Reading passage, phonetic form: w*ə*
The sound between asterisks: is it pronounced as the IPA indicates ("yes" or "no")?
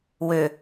no